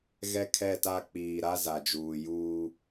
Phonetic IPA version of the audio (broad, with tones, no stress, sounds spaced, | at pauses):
ɣ ɛ˦ kʰ ɛ˦˨ t a˦˨ k͡p iː˨ ɾ a˦ z a˨ d͡ʒ uː˨ j uː˦